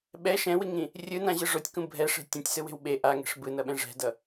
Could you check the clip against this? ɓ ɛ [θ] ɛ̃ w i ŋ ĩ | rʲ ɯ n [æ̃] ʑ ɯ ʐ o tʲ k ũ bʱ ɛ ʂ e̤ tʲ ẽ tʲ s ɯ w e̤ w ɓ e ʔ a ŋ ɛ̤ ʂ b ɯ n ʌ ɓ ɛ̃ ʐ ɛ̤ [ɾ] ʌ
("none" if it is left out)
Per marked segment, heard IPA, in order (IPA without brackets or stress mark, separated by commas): ʃ, ã, d